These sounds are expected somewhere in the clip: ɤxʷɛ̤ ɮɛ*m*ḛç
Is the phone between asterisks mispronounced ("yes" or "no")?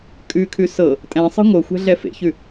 yes